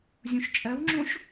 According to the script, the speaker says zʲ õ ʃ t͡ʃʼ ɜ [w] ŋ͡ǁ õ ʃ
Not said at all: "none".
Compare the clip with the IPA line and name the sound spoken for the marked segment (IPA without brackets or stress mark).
w